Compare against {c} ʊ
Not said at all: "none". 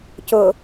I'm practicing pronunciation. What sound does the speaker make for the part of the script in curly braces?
c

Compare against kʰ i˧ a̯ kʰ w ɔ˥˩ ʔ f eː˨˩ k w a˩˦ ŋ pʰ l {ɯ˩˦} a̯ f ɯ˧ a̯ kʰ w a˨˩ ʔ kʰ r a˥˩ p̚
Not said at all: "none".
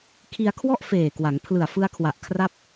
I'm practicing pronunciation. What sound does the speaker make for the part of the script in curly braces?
ɯ˨˩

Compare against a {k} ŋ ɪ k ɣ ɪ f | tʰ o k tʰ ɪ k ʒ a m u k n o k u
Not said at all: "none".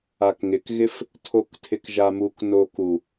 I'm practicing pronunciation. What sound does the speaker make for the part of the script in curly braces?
k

